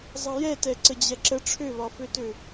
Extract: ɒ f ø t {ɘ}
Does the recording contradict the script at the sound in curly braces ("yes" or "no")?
yes